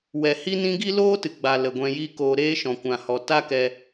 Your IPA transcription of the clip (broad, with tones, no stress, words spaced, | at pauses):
wɛ˨hi˦nĩ˦ ɡi˦loː˦tɨ˨ ɡ͡ba˨ lə˨ɡʷɛ̃˧ji˦koː˧ ɾeː˦ʃɔ̃˨kʷã˨hɔ˨ ta˦kɛ˧